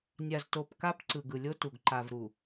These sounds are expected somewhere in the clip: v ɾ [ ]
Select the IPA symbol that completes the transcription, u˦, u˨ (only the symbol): u˨